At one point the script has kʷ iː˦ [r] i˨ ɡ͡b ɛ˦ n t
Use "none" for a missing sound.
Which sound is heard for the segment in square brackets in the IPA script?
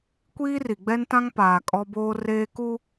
r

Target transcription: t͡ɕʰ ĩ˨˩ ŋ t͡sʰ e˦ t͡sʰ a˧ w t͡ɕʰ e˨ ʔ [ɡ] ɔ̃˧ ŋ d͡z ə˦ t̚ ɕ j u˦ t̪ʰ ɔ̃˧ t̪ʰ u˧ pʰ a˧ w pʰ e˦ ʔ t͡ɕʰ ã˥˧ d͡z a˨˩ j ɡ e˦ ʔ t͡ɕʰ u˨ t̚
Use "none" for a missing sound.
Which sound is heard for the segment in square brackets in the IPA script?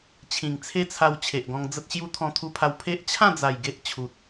ɡ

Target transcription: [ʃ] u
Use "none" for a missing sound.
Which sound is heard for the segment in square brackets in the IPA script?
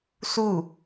s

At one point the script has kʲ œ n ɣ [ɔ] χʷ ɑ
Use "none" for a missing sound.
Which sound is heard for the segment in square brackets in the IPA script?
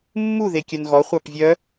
ɔ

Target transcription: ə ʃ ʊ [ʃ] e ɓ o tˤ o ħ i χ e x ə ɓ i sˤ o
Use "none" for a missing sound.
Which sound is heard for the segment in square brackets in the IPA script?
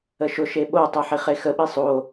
ʃ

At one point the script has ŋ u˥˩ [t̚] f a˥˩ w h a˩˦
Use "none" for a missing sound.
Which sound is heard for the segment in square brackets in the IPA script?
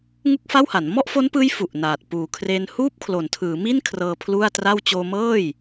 k̚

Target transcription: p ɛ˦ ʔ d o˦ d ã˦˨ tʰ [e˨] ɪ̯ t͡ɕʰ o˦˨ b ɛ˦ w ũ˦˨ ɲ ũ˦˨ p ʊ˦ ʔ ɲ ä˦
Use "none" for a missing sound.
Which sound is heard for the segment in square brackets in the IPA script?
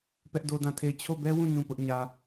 e˦˨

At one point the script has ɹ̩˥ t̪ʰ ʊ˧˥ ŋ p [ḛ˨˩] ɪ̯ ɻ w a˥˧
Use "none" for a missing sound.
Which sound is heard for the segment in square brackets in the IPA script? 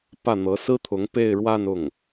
e˥˧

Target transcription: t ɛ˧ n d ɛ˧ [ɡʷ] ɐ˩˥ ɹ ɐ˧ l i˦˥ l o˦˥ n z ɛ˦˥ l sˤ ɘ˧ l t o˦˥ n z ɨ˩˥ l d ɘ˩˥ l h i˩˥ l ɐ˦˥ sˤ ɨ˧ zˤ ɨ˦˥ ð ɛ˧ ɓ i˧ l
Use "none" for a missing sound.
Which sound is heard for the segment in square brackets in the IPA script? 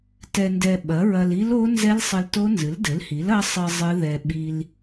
ɓ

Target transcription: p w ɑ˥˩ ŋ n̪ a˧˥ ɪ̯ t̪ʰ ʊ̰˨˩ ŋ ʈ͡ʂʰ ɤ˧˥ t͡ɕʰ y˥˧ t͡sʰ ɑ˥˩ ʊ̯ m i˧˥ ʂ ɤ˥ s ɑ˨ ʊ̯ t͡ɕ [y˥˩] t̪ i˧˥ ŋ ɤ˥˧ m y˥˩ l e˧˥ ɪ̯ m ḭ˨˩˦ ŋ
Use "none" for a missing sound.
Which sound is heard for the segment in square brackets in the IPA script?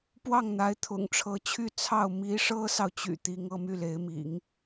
y̰˨˩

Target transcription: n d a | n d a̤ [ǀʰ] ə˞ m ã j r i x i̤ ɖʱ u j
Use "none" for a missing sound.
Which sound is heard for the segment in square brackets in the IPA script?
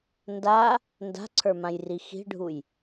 ǀʰ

